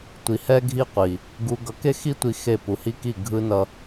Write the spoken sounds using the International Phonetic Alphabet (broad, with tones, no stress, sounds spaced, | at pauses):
tʷ i˨ h ɛ˦ ɡʱ i˦ qʷ i˨ | ɡ u˨ ɡ ʌ˨ k e˦ x i˦ tʷ i˦ x e˦˨ p u˨ h i˦ k i˦˨ ɡʱ ɯ˦ n ʌ˦